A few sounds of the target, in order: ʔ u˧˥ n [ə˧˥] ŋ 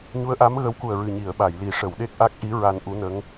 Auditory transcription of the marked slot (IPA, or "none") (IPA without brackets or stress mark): ə˧˥